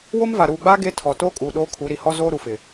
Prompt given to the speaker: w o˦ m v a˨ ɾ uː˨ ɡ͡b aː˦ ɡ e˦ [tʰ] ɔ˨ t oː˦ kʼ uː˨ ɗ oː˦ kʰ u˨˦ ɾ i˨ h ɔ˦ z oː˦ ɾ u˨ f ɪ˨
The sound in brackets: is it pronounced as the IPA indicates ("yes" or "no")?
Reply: yes